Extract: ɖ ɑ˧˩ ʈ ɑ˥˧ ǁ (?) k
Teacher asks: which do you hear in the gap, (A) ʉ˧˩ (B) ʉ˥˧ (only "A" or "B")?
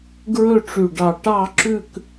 B